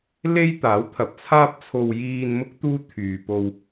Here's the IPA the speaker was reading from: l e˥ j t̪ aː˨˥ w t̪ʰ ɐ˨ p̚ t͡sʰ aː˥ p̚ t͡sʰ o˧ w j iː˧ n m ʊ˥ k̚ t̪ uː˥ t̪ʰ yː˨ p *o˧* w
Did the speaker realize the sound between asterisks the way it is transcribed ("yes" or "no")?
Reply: yes